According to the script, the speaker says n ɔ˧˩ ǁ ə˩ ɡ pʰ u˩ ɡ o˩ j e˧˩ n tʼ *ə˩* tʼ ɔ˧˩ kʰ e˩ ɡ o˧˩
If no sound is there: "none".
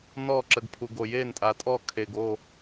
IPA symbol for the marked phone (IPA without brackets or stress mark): a˩